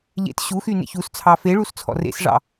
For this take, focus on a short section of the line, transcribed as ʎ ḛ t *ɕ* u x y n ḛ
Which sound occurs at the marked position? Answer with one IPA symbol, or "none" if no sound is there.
ɕ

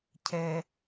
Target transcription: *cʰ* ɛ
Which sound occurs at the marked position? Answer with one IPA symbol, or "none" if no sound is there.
cʰ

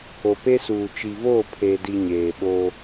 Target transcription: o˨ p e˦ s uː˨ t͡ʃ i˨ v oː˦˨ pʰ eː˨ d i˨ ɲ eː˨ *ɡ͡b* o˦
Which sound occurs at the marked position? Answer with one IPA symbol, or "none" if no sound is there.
ɓ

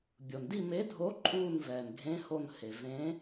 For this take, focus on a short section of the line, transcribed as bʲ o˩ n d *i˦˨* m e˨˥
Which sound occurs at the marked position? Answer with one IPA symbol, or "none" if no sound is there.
i˦˨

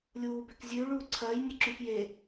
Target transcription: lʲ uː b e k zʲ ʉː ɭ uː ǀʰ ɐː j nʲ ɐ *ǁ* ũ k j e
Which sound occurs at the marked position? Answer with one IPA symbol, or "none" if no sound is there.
ǁ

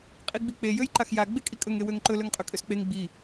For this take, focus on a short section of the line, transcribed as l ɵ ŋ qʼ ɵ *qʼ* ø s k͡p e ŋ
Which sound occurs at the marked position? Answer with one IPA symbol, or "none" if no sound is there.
kʼ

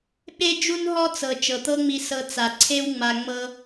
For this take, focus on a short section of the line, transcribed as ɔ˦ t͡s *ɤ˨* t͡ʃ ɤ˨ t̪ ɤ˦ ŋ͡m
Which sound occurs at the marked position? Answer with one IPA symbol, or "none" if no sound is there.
ɤ˨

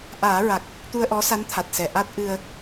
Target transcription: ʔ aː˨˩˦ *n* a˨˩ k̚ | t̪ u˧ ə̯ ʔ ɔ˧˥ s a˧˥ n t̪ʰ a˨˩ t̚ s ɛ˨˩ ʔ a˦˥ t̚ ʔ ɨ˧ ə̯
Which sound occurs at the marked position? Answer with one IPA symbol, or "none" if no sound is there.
ɹ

